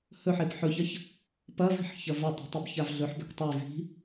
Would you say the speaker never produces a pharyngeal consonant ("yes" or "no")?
no